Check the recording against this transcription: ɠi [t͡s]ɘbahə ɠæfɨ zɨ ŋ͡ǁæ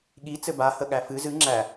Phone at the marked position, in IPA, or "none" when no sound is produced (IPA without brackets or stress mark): t͡s